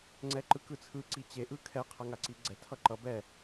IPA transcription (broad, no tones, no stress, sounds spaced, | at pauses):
ŋ͡ǀ ɛ ǃ ɯ k ɯ t͡sʰ ɯ ǀ i t͡ɕ e ʔ ɯ kʰ ɛ qʰ a ŋ a ǀ i ɡ͡ǀ ɛ tʰ ʌ ǃ ʌ b ɛ